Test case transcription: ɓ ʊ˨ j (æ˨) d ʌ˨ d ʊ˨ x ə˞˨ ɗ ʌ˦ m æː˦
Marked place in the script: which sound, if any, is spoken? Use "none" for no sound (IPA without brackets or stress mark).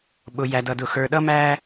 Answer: æ˨